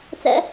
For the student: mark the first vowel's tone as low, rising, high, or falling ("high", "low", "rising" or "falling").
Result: high